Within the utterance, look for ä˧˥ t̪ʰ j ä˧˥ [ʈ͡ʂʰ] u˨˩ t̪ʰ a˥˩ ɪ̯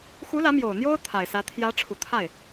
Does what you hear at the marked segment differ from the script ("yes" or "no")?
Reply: no